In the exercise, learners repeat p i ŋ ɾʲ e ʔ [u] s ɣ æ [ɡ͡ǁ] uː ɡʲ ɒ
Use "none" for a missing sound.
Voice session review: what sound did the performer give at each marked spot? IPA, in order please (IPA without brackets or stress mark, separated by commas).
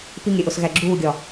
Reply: o, ɡ͡ǁ